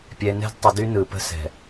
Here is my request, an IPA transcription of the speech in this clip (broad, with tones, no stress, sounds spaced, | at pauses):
pʲ ɛ˨ n ɛ̤˦ d tˤ ə˨ d y˦ n ɯ˨ p ə̤˦ s ɛ̤˨